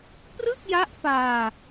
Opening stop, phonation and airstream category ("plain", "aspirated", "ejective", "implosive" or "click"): plain